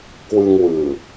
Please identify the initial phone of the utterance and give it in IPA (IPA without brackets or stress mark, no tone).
k